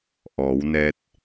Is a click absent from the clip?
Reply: yes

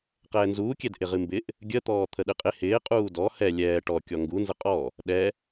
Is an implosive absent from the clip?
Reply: no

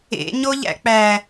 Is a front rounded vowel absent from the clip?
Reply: yes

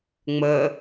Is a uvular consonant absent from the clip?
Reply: yes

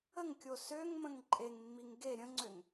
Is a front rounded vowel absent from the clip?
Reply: no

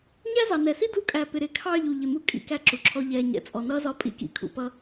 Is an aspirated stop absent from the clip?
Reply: no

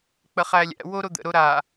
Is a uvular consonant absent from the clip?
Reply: no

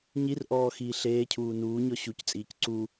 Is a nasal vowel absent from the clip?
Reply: yes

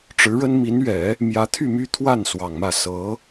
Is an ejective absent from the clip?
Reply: yes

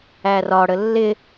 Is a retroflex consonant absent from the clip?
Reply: no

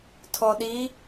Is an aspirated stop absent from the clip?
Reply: no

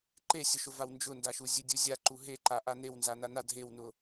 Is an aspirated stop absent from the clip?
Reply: yes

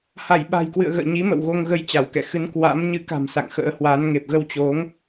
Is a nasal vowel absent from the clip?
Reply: yes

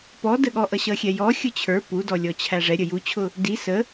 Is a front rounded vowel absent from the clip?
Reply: yes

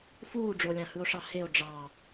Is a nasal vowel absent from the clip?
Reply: no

